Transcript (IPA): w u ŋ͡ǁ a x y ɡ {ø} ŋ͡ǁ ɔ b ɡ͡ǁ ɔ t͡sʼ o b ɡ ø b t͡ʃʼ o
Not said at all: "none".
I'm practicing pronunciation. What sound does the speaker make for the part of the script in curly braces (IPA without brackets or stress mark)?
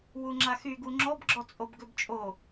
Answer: u